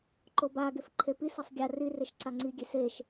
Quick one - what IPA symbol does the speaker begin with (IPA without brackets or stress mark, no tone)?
ǃ